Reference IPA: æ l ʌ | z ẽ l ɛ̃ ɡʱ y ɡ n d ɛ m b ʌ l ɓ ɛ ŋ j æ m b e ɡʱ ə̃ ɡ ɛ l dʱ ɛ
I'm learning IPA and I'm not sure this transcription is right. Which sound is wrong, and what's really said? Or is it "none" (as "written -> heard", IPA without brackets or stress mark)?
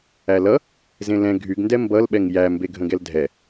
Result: none